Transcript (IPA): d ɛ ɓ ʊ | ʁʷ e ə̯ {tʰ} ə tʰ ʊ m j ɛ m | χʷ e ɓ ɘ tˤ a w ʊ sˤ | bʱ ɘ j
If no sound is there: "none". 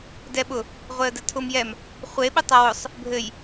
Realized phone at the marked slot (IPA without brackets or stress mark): d